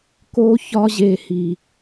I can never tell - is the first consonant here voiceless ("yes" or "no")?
yes